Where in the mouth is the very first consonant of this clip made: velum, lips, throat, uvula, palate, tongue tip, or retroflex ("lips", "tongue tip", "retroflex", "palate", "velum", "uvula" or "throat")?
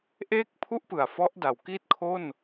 throat